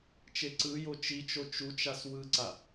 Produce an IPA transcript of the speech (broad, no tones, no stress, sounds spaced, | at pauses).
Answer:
t͡ʃ e ǀ ɯ j o t͡ʃ i t͡ʃ o t͡ʃ u t͡ʃ a s w ɯ ǀ a